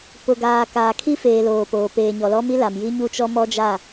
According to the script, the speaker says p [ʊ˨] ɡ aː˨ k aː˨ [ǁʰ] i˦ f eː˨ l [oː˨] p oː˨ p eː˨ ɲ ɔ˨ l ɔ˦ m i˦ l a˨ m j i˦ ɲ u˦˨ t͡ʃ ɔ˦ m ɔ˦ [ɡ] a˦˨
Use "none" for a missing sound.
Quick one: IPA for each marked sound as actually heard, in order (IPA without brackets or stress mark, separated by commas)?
ʊ˨, kʰ, oː˨, d͡ʒ